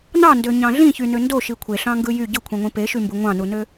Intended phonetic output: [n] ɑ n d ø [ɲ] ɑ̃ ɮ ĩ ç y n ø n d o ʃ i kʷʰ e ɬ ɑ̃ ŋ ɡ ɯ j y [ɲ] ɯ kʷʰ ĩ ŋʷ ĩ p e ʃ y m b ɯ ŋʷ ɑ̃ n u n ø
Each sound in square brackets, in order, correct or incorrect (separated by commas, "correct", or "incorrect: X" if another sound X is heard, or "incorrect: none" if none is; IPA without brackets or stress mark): correct, correct, incorrect: ɟ